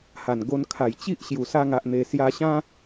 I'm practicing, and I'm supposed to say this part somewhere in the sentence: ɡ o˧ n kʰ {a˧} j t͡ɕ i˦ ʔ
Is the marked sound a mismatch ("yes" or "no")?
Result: yes